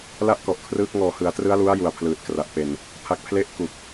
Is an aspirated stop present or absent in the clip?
present